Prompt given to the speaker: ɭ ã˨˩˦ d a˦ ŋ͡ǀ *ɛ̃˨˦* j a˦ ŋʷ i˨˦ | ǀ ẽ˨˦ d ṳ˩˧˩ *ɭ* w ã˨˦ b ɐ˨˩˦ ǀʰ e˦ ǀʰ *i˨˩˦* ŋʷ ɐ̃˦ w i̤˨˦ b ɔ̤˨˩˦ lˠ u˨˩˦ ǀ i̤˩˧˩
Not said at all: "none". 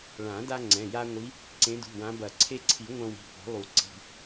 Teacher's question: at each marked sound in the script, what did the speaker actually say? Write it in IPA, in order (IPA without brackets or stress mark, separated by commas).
ɛ̃˩˧˩, none, i˨˩˦